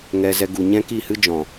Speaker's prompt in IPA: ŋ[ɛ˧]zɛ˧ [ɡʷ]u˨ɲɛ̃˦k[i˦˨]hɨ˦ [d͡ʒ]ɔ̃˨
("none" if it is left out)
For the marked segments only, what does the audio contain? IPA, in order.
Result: ɛ˧, ɡ, i˦˨, d͡ʒ

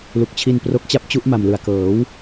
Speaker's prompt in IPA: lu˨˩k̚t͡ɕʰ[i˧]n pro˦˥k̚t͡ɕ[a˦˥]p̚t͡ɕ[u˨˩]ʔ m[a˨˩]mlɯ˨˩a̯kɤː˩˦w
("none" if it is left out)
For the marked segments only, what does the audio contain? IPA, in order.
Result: i˧, a˦˥, u˦˥, a˨˩

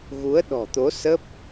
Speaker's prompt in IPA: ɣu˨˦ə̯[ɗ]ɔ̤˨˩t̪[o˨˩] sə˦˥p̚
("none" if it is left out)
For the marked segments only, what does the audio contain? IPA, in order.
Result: ɗ, o˨˦

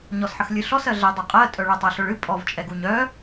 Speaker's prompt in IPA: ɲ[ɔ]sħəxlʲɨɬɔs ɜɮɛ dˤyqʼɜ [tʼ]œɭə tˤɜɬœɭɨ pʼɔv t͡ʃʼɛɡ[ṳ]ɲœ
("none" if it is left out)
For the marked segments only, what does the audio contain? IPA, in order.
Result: ɔ, tʼ, u

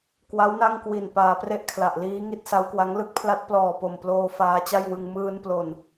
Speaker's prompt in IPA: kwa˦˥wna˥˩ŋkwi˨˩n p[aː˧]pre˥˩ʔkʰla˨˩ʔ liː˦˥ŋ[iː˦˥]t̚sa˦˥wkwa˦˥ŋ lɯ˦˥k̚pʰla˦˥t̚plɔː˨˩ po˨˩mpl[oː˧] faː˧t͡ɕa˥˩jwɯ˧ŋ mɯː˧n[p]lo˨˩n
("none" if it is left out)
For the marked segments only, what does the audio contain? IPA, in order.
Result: aː˧, i˦˥, oː˧, p

